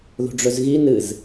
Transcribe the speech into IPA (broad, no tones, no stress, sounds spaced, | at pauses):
ð o̤ ɖ͡ʐ ɵ z ɣ i n ɨ z